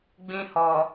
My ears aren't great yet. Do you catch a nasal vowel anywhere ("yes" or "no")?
yes